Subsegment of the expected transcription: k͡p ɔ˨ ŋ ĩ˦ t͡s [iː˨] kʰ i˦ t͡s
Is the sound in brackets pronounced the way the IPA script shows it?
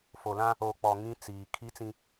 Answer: yes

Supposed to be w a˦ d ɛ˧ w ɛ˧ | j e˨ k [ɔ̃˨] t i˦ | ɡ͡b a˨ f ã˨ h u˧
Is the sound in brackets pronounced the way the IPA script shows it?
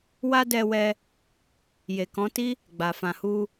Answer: no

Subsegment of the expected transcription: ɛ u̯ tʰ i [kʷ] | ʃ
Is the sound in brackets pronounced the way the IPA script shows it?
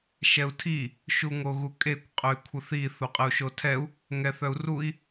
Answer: no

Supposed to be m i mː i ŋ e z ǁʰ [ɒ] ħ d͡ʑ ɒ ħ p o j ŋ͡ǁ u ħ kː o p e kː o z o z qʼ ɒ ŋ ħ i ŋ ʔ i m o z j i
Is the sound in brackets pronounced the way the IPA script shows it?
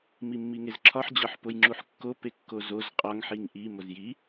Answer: yes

